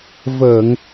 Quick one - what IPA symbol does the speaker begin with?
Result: v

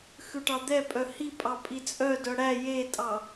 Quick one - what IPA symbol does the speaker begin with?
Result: x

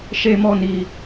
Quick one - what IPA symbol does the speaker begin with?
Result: ʃ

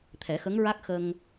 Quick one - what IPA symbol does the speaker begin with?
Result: t̪ʰ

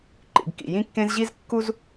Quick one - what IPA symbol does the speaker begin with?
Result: ǃ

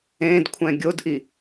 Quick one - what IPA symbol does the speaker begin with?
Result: ẽ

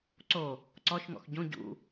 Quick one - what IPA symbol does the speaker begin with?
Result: ǀ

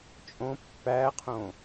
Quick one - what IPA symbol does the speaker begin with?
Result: t͡ʃʼ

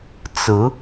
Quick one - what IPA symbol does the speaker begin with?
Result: t͡s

